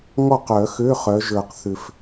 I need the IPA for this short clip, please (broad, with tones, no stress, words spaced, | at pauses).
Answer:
ŋɔ˥˩qœ˨˩˦xø˧˥˧ χœ˨˦ʒə˞˨˩qθʏ˨˩f